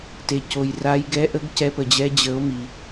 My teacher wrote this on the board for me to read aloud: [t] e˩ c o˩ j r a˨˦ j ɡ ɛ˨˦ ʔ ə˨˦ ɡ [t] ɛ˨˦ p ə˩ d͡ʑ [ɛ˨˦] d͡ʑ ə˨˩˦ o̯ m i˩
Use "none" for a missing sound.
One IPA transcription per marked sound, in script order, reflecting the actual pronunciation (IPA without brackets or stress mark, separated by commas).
t, c, ɛ˨˦